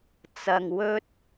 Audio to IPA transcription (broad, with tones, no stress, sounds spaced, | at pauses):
t͡s ɐ˧ ŋ w ɵ˥ t̚